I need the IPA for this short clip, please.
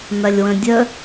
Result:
n ɐ lʲ w ə̃ dʲ ə

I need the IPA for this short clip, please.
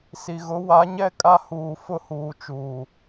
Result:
s i˨ ɣ ʊ˨˦ w a˨˦ ɲ ɛ˦ kʼ a˦ h uː˨ f ʊ˦ h uː˨ t͡ʃ uː˨

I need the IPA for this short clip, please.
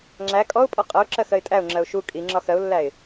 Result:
ŋ͡ǁ æ kʼ ɔ ʊ̯ pʼ ɔ qʼ ʌ ʊ̯ ǁ ɜ x ɜ ɪ̯ tʼ æ ʊ̯ ŋ͡ǁ ɜ ʊ̯ ʃ u kʼ i ŋ͡ǁ ɒ x ɜ ʊ̯ lː æ ɪ̯

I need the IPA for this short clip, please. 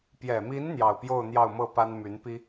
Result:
p j ɛ˨˩ m i˧˥ n n̪ j ɑ˥˧ ʊ̯ p j o˥˧ ʊ̯ n̪ j ɑ˥˧ ʊ̯ m ɤ˥˩ p a˥ n m y˧˥ n p i˥

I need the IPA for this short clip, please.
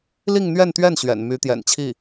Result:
l i˥˧ ŋ n̪ ɥ ɛ˥˧ n t̪ ɥ ɛ˥˩ n ɕ ɥ ɛ̰˨˩ n m y˧˥ t̪ j ɛ̰˨˩ n t͡ɕʰ i˥˩

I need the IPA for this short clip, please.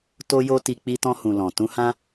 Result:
t o˦ j o˦ t i˧ k͡p i˧ t ɔ̃˧ h ũ˨ l ɔ̃˨ t ũ˧ h ã˦

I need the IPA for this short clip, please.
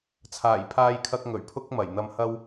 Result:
t͡sʰ aː˨˩ j pʰ aː˧ j kʰ ɐ˧ k̚ ŋ ɵ˨˩ ɥ pʰ ʊ˥ k̚ m ɐ˨˩ j n̪ ɐ˧ m h ɐ˥ w

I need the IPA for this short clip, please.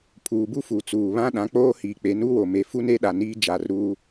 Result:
pʰ uː˨ b u˦ f u˨ t͡s uː˨ β ã˦ ɗ ã˨˦ k͡p oː˦ h iː˨ k͡p e˨˦ n u˦ w o˨ m e˨ f u˦ n e˦ ɗ a˨ n iː˦ d͡ʒ a˨ r ɾ uː˦

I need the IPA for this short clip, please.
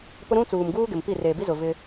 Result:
p ʊ˦ ɾ ũ˦ t͡s uː˨ m ɡ uː˦ ɡ ɪ˨ m p i˦˨ r eː˨ b i˦ z ʊ˨ v ɪ˦

